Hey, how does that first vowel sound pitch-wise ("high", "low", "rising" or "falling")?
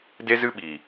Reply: high